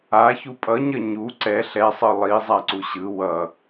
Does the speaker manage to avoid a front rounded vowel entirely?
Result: yes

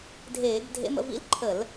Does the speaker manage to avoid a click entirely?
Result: no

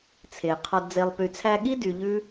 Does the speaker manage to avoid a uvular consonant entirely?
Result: no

